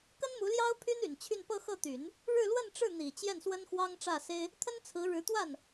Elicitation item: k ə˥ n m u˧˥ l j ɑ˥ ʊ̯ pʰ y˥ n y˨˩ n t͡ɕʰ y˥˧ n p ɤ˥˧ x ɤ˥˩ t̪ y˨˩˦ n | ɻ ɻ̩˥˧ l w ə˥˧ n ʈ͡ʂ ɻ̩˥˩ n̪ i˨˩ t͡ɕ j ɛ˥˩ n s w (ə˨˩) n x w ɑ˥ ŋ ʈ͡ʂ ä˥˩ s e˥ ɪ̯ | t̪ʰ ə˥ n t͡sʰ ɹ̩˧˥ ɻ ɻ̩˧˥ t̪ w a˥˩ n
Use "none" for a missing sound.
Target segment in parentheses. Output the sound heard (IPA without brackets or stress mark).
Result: ə˥